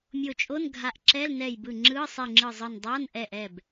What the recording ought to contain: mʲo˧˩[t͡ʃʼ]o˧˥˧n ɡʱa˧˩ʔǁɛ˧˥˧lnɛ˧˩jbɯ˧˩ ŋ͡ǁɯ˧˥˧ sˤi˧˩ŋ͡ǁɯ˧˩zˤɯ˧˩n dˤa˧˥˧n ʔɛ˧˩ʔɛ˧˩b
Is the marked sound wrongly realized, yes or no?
no